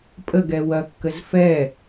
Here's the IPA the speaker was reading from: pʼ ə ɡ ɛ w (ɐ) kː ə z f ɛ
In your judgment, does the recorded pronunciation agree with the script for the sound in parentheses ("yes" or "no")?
yes